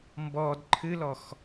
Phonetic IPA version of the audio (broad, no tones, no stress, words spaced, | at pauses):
mbɔd ǃʰɨlɔx